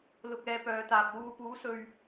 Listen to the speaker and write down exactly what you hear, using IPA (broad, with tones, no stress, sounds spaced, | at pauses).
l ʊ˧ k̚ ɛː˨˧ p œː˨˥ t̪ aː˨ p̚ w uː˨ p uː˨˥ s ɵ˧ ɥ